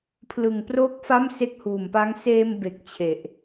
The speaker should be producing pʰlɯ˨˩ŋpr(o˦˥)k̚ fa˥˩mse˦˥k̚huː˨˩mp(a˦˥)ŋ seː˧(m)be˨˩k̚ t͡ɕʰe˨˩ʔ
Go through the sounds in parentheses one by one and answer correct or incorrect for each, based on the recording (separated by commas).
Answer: correct, correct, correct